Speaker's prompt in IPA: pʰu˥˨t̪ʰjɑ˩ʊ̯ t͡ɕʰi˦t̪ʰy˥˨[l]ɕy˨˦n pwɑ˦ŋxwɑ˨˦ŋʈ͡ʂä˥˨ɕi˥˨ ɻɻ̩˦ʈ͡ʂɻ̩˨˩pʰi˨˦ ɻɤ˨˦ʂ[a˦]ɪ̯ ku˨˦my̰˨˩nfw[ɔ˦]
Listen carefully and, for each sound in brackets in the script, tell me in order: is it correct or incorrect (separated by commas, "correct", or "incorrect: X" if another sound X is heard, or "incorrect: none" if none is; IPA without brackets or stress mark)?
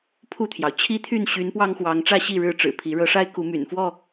incorrect: n, correct, incorrect: ɔ˥˨